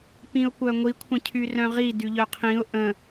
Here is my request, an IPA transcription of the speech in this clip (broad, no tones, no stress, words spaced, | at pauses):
pĩʊ̯kʷœŋʷi kʷʰə̃cʰyrœ̃ʁi dyʎœqʰĩʊ̯ ʔə̃